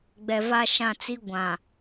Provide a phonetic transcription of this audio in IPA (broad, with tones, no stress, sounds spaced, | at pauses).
ɡ͡b ɛ˨ v a˦ ʃ ã˦˨ t͡s i˦ ɡʷ ã˨